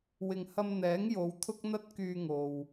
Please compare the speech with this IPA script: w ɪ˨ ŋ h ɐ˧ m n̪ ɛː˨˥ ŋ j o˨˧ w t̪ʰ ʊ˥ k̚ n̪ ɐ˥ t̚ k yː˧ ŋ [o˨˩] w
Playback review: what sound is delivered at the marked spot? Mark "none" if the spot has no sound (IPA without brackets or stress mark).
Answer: o˨